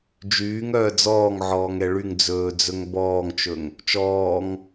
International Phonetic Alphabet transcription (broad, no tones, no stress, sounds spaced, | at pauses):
d͡ʒ yː ŋ œː d͡z ɔː ŋ ʕ ɔː ŋ ɛ ɭ y ŋ d͡z ɵː d͡z ɵ ŋ b ɔː ŋ t͡ʃ ɵ ŋ | t͡ʃ ɔː ŋ